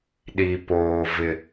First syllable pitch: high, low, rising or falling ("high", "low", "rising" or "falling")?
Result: low